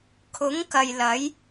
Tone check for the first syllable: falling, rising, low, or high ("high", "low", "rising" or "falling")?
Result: rising